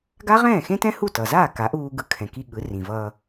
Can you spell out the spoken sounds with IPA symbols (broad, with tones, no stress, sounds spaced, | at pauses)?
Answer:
ɡ a˥ ʁ ɛ̃ː˥˩ x ẽ˥ t ɛ̃˥ h u˥˩ t ʌ˩ z aː˥˩ k a˩˥ ʔ uː˧ ɡ ɯ˩˥ kʰ ɛ̃˩ k i˧ ɠ ɯ˩˥ r ĩ˩ v ʌː˧